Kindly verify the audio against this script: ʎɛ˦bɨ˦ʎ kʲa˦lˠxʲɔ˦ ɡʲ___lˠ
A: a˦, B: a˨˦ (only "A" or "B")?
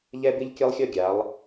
B